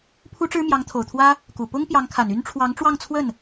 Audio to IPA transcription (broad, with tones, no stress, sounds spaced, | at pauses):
pʰ u˥ ʈ͡ʂ ɻ̩˥ m j ɑ˧˥ ŋ t̪ʰ o˨˩ ʊ̯ t̪ʰ w ä˥ | k u˨˩ p ʊ˥ ŋ p j ɑ˧˥ ŋ kʰ a˨˩ n y˥ n ʈ͡ʂʰ w ɑ˧˥ ŋ ʈ͡ʂ w ɑ˥˧ ŋ t͡sʰ w ə˥˩ n